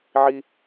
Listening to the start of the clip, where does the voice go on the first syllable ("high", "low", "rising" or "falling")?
high